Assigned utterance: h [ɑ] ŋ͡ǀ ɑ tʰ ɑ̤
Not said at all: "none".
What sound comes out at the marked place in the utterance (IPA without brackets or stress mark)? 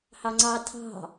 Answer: ɑ